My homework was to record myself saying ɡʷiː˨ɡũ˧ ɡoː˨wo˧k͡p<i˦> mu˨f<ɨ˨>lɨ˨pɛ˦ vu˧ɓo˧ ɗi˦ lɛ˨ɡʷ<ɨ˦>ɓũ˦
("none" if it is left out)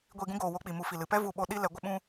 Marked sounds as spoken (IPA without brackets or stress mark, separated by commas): i˨, i˨, ə˦